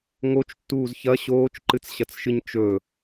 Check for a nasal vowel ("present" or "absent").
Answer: absent